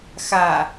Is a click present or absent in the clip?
absent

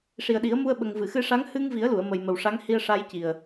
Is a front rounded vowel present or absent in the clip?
absent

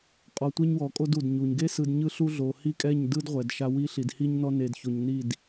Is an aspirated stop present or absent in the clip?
absent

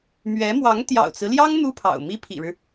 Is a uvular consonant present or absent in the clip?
absent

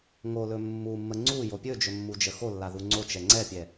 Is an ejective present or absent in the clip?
absent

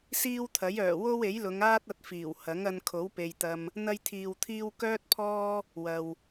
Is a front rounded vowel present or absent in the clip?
present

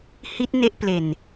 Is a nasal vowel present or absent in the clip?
absent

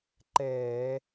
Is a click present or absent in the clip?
present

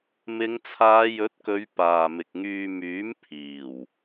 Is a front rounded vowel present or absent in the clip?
present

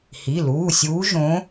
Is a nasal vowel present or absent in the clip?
present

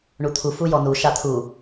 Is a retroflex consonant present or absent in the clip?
present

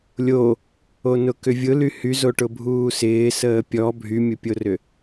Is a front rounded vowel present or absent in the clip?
present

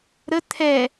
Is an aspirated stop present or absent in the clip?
present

